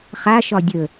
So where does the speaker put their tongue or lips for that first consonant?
uvula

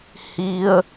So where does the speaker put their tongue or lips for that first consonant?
throat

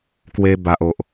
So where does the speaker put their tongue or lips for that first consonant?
velum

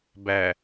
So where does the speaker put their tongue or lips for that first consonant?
lips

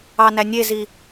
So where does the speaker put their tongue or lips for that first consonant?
tongue tip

